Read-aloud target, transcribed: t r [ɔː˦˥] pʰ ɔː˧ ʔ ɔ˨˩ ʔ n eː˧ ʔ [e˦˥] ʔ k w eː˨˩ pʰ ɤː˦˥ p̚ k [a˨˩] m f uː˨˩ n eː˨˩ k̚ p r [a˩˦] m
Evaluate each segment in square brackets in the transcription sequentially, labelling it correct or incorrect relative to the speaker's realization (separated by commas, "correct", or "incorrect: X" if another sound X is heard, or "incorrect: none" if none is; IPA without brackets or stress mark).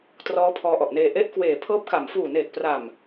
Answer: correct, correct, correct, incorrect: a˨˩